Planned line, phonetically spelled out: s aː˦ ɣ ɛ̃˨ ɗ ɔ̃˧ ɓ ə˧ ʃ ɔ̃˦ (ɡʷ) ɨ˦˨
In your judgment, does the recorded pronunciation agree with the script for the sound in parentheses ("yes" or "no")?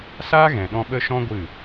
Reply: yes